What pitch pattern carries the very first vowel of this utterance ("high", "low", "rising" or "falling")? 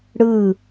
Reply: falling